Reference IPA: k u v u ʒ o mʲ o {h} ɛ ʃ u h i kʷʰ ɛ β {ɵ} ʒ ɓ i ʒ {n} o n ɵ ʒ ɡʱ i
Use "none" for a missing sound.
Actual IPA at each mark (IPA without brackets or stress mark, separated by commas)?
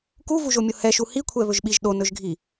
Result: h, ɵ, ɗ